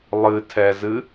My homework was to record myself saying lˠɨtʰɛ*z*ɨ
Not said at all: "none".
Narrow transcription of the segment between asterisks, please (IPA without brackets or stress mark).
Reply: z